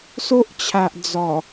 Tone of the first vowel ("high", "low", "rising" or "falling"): high